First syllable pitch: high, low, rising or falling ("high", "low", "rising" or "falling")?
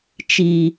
low